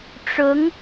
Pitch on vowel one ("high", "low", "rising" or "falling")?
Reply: rising